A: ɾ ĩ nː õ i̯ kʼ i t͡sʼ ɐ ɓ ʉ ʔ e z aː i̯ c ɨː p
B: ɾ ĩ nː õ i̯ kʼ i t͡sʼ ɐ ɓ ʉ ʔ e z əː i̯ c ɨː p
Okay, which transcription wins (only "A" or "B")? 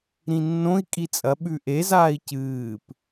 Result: A